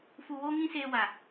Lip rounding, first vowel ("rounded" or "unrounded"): rounded